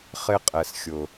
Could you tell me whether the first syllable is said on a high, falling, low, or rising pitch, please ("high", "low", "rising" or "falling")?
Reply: high